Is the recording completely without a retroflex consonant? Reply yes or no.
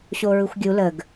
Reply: yes